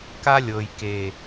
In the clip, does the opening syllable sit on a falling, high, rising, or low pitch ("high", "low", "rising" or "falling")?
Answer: high